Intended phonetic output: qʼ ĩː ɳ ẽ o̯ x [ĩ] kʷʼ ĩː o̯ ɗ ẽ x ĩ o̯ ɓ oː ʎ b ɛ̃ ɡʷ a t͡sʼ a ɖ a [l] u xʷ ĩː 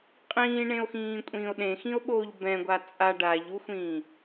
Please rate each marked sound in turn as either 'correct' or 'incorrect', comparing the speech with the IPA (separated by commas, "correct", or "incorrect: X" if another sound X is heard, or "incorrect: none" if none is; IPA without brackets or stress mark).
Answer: incorrect: ĩː, incorrect: ʎ